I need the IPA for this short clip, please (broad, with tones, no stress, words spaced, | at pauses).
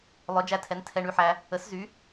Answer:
lˠœ˩˥d͡ʒæ˧tʰɛ˩˥n tʰɛ˧ɳy˧ħæ˧ | ə˩˥szy˩˥